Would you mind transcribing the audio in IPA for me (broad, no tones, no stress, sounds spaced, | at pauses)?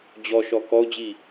d͡ʑ ɔ ʃ ɔ k ɔ ʊ̯ d͡ʑ i